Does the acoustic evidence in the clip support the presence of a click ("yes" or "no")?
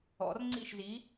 yes